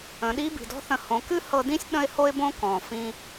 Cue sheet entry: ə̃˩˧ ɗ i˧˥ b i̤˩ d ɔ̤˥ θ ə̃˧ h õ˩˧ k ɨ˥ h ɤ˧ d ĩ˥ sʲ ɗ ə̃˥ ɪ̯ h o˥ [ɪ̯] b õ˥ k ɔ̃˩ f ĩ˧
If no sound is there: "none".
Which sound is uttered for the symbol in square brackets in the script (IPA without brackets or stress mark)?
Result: ɪ̯